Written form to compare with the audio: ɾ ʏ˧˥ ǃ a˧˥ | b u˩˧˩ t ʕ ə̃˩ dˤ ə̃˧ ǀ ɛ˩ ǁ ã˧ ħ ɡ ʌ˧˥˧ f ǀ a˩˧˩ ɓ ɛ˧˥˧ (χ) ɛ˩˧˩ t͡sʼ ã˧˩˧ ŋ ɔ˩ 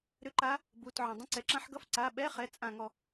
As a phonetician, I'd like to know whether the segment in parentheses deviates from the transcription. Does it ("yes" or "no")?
no